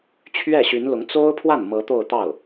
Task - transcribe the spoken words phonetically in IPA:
t͡ɕʰ ɥ ɛ˥˩ ɕ y˧˥ n l ʊ˧˥ ŋ t͡s o˥ ʊ̯ pʰ w a˥˩ n m ɤ˧˥ t̪ o˥˧ ʊ̯ t̪ ɑ˥˩ ʊ̯

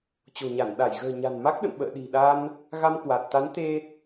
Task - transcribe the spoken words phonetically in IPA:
t͡ɕ o̤˨˩ ɲ a˧˩ n ɗ a˧˩ j ɣ ə̤ː˨˩ ɲ a̤˨˩ n m a˦˥ k̚ ɗ ə̰˧˨ n ɓ ə̰ː˧˨ ɗ i̤˨˩ ɗ a˧ n | ɣ a˧ m k w a˨˩ t̚ t̪ a˨˦ n t̪ e˧

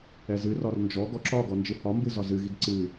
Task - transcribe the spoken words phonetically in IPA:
ɛ z ɨ r ɒ r n d͡ʒ ɔ ɡ ɔ ǁ ɒ ɡ ɔ n d͡ʒ ɨ h ɒ m b ɨ z ɒ z ɨ ɣ i ɡ ǀ ɨ

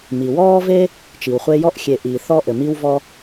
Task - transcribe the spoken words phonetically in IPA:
m i˩ w ɔː˦ v e˦ | t͡ʃ i˩ w χʷ e˦ j ɔ˥ ʔ xʲ e˨ ʔ iː˨ θ ɔ˦ ʔ ɘ˩ m i˦ w v ɔ˦

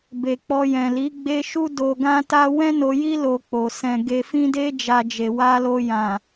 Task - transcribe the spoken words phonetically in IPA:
b e˨ k͡p ɔ˧ j ɛ̃˨ l i˨˦ ɡ͡b e˦ ʃ u˦ d o˧ ɡ ã˦ t a˦ w ɛ̃˦ n o˧ j i˦ l o˧ k͡p o˨ s ɛ̃˧ ɡ e˧ f ĩ˦ d e˦ d͡ʒ a˧ d͡ʒ e˨ w a˧ l o˧ j ã˨

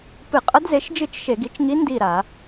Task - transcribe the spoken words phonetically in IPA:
p ɨ˧˩˧ qʼ ɐ˧˥ d z e˩˥ ʃ d͡ʒ ɨ˦˨ t͡ʃ ʃ e˧˩˧ ɡ i˩˥ t͡ʃ ŋ i˧˥ n d i˦˨ ɾ a˧˩˧

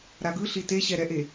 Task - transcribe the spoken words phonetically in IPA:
ɾ a ɡ ɯ ɬ i t e ɕ ɛ ɾ ɛ ʔ e

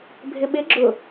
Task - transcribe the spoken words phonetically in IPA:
bʱ ɪ ɓ ɪ ɡ͡ǁ ʊ

